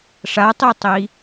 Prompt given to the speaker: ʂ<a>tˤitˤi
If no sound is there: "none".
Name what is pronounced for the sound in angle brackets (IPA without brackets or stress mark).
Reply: a